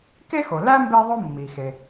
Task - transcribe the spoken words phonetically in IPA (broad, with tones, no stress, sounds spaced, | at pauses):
k e˥ x o˩ l æ˥ m b e˥ ðˤ o˥ mː i˩ x e˩